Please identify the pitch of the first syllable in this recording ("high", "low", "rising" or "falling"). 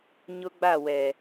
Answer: high